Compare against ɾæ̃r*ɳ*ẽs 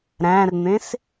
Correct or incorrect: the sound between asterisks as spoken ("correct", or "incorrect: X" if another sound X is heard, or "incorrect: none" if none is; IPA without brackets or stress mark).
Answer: incorrect: n̪